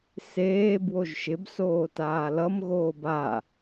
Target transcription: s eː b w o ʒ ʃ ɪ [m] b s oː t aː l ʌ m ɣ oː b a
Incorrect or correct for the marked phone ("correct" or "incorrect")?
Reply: incorrect